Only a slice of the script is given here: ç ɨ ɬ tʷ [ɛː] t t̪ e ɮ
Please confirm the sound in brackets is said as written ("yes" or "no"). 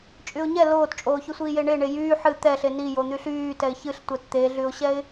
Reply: no